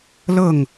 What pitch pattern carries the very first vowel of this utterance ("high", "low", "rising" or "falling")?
falling